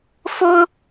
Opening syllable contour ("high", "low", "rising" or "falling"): high